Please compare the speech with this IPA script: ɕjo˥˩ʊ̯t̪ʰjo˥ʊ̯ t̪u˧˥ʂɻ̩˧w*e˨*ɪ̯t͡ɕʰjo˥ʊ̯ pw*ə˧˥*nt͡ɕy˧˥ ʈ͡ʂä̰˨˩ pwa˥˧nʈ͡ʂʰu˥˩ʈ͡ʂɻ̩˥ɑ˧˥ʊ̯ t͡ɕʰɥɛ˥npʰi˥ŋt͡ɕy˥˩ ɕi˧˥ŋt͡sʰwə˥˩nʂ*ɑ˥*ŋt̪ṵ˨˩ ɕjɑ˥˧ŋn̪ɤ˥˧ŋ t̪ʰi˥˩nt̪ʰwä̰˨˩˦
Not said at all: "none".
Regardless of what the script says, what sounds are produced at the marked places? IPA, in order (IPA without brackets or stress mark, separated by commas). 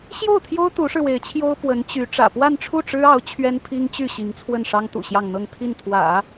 e˧˥, ə˧˥, ɑ˥